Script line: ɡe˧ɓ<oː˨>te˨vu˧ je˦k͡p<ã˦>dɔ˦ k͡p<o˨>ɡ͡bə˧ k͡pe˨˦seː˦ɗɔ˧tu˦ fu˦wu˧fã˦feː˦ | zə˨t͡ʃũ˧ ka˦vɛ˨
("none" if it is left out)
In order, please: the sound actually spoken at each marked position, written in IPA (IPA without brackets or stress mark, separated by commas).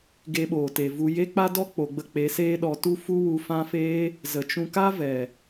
oː˨, a˦, o˨